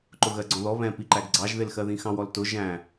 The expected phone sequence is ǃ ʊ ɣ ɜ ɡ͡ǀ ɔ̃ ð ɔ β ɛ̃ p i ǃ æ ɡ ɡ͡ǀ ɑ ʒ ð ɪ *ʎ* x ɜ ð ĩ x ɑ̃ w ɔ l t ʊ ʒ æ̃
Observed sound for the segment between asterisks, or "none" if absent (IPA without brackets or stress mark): l